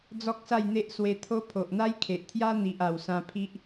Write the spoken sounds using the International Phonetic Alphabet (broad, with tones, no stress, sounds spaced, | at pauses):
d͡z ɔ˦ k̚ s a˥˧ j n̪ e˦ ʔ s w e˧ t̪ʰ o˦ pʰ o˨ ʔ n̪ a˦ j kʰ e˨ ʔ t̪ʰ j a˦ n̪ i˨ ʔ a˨˩ w s ã˧ pʰ i˦ ʔ